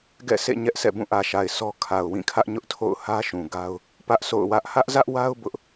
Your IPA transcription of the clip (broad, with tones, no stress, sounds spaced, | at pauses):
ɡ ɛ̰˦˨ sʰ ḛ˦˨ ɲ ɛ˦ ʔ sʰ ɛ̰˦˨ b ũ˦˨ ʔ ä˨ ʃ a˨ ɪ̯ sʰ ɔ˦ kʰ a˨ ʊ̯ w ĩ˦˨ kʰ ä˦ ʔ ɲ ʊ˦ ʔ tʰ o̰˦˨ ʊ̯ h ä˦ ʃ ũ˨ ɡ a˦ ʊ̯ | p ä˦ ʔ s o̰˦˨ ʊ̯ w ä˦ ʔ h ä˦ ʔ z ä˦ ʔ w a˦ ʊ̯ b ʊ˦ ʔ